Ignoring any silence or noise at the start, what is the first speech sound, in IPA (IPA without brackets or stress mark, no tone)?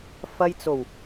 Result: f